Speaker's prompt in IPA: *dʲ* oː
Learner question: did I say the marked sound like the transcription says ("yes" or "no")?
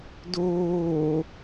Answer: no